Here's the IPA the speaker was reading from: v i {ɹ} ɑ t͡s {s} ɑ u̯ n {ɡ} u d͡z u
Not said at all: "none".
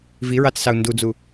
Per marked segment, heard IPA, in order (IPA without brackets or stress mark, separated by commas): ɹ, s, d